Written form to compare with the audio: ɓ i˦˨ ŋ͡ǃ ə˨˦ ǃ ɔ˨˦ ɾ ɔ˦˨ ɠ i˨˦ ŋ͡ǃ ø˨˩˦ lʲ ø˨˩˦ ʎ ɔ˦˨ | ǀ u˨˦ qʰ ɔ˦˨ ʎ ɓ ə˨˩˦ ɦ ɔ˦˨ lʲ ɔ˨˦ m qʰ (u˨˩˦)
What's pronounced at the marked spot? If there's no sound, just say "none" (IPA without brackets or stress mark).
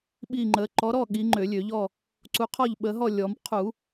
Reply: u˨˩˦